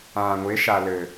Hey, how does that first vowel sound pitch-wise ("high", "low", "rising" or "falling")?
low